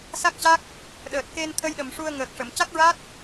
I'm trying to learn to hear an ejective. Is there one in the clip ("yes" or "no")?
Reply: no